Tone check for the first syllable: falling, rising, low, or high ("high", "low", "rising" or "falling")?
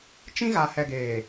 high